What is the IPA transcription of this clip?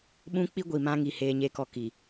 ɓũ˦k͡pi˦ ɡʷi˨mã˦ŋi˨ heː˦ɲe˦kɔ˦ ki˨

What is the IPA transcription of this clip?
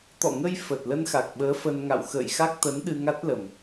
t̪ɔ̰˧˨ŋə˧j fə˨˩t̚lə˧nxa˨˩k̚ɓəː˨˦ fə˧nŋa̰˧˨w xə̰ː˧˨jxa˦˥k̚t̪ə˨˦n ɗɨ˧ŋa˦˥t̚lə˨˩m

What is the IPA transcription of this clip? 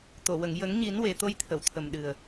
t̪o˨˩˨wə˨˩˨ŋ jə˨˩˦ŋɲi˨˩˦nwe˨˩ t̪o˧jt̪ʰə˨˩˨wt̪ʰə˨˩m ɗɨ˨˩ə̯

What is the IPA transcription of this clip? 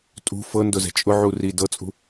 tʼṳ fɤndʊzɛ̤ t͡ʃʼʊʕuri dɤt͡sʼṳ

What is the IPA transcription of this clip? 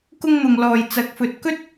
kʊ˥ŋ n̪ʊ˨ŋlɔː˨j t͡sɐ˨˥k̚fɵ˨t̚kɵ˥t̚

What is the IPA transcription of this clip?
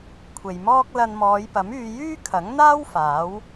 kʷʰe˨jmɔː˥k̚ lɐ˧nmɔː˨˧jpɐ˨˥myː˧ jyː˥kʰɐ˨˥ŋn̪aː˥w faː˨˥w

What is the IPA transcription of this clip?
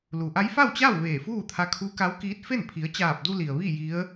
lu˩ʔa˧˥jfa˥˨wt͡ɕa˥˨w ʋeː˧˩fuː˥˨t̪ʰa˧ kʰu˧˥ka˧˥wkiː˧˥t̚fe˥˨n pʰi˩˧ə̯t͡ɕaː˧˩p̚du˧ li˩ə̯ ʋi˥˨ ji˧˥ə̯

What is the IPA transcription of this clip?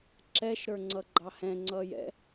ǁɛʃ ɾə˞ŋ͡ǀʌɡ͡ǃɑhɛ̃ ŋ͡ǀʌːjɛ̰

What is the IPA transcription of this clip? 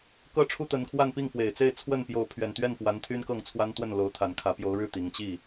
kɤ˥ʈ͡ʂʰu˥t̪ə˧˥nkʰwa˥˧n pi˥˩ŋfwe˨˩ɪ̯t͡se˥˧ɪ̯ t͡sʰwə˥˩npjo˧˥ʊ̯pʰɥɛ˨˩n t̪ɥɛ˥˩npwa˧˥n t̪ʰy˥nkɤ˥˩ŋt͡sʰwa˥n t̪wə˥˩nlo˧˥ʊ̯ t̪ʰa˨˩nkʰä˧˥pjo˧˥ʊ̯ɻɻ̩˥˩ t̪i˨˩ŋt͡ɕi˥˩

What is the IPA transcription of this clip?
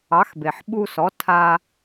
ɑ˩˥xbe˩ħ ɓu˧sɔ˩˥ tʰa˧

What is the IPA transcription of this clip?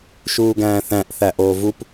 ʃuːɡæ̃ːθæ̃ʔ θæʔoːvup

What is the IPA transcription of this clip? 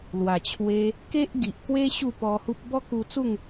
lwa˨˩t͡ɕʰwe˧ | ke˦ʔ ɡi˨ʔkwe˦ ɕu˥˧pɔ˧hu˦p̚ bɔ˦ku˧t͡su˥˧ŋ

